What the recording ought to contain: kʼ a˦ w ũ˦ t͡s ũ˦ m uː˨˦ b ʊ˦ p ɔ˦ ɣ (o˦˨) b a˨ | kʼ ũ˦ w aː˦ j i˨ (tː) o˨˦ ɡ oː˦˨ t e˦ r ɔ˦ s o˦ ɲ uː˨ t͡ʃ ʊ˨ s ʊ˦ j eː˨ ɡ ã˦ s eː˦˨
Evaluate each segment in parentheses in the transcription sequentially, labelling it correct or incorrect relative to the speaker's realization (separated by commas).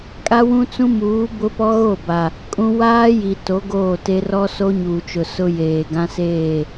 correct, incorrect